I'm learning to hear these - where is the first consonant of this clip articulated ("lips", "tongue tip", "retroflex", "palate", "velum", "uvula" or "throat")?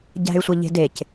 palate